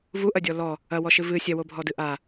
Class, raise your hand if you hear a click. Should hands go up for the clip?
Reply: no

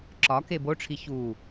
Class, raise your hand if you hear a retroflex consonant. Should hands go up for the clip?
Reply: yes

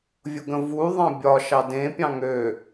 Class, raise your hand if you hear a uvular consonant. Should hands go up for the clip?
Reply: no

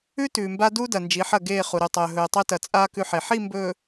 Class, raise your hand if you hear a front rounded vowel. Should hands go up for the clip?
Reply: no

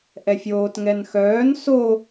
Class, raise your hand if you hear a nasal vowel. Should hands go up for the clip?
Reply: no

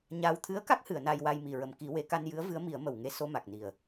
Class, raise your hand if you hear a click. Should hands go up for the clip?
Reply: no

